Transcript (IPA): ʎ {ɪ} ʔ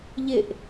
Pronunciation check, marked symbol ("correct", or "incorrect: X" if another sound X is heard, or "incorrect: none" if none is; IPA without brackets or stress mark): correct